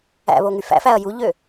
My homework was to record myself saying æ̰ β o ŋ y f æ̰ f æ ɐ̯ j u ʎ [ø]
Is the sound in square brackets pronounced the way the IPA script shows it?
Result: yes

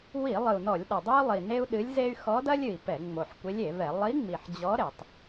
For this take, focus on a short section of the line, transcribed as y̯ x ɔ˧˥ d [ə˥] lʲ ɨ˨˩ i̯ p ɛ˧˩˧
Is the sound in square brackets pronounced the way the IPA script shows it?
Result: no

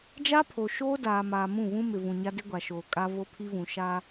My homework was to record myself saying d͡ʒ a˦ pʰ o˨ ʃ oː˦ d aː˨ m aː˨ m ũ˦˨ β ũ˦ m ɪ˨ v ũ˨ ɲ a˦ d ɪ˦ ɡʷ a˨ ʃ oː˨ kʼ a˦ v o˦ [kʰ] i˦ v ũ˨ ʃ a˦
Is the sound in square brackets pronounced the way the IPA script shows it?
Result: no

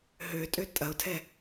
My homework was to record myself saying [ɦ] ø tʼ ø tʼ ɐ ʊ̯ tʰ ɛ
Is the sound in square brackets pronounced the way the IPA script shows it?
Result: yes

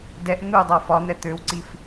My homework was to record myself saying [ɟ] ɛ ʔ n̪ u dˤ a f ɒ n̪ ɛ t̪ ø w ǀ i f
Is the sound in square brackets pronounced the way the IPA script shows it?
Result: no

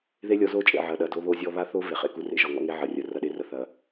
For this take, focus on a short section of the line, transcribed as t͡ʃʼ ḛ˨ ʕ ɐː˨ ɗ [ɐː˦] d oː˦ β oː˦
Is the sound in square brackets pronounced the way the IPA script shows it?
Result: no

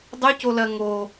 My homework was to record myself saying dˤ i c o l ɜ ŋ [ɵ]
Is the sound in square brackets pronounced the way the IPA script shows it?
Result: no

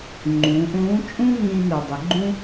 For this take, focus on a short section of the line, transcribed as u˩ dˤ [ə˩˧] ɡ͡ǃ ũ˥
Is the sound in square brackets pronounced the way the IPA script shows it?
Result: yes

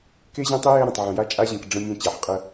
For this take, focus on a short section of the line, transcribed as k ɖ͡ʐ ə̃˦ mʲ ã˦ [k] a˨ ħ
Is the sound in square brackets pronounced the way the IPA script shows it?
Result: no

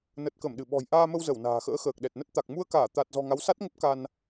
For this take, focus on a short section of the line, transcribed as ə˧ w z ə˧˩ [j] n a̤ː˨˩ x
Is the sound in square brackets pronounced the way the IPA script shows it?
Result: no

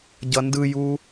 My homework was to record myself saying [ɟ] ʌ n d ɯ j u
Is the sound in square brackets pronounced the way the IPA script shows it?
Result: yes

